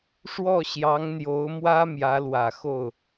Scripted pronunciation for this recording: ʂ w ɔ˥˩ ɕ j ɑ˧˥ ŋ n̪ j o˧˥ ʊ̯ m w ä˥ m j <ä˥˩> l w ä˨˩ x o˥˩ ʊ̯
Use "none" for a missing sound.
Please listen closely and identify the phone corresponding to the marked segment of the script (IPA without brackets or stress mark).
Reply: ä˧˥